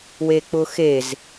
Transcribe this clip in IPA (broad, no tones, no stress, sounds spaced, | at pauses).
w e k͡p ʊ x e z